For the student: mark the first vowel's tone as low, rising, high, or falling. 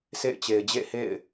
falling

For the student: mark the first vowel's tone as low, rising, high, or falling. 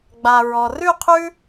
low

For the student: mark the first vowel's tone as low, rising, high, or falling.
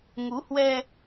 rising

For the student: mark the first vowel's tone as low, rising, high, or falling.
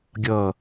low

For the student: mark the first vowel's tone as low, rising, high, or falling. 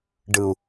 low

